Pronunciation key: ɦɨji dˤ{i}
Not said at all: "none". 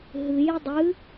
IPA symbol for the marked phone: ɨ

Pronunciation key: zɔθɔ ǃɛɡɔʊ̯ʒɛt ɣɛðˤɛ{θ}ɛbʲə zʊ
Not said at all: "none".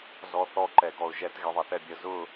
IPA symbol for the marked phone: θ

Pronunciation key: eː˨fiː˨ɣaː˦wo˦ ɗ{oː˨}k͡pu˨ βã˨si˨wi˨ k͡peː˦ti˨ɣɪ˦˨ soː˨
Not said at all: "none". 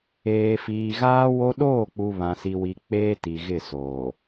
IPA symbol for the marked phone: oː˦˨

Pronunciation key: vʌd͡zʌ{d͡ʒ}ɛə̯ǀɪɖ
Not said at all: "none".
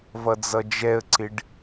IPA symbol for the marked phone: d͡ʒ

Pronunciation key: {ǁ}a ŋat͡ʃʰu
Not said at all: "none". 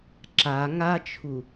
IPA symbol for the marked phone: ǁ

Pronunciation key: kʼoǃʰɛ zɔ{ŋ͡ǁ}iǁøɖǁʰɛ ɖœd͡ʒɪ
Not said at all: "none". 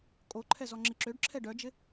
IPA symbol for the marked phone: ŋ͡ǁ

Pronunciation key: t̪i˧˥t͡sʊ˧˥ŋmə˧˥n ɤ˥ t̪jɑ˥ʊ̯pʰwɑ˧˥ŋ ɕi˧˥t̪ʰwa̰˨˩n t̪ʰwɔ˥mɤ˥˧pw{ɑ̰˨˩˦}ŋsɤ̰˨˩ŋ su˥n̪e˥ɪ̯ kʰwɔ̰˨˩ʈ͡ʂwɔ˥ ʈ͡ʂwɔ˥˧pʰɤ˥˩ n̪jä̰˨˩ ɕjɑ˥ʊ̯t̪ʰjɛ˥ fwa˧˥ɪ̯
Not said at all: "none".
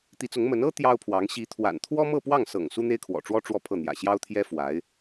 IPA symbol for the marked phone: ɑ˥˩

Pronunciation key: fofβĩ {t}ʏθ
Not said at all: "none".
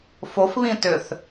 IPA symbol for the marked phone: t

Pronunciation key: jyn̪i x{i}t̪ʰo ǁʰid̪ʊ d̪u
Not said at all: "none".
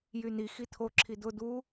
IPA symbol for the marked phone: i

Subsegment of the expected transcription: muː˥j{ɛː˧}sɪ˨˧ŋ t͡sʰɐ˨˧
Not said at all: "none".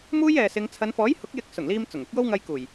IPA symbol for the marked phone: ɛː˨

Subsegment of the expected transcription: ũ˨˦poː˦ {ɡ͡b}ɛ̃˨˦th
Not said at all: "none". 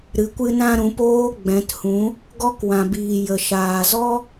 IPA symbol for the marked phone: ɡ͡b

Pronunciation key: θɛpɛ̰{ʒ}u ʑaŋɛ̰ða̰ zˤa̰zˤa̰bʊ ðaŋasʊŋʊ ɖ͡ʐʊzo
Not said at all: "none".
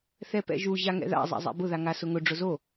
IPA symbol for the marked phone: ʒ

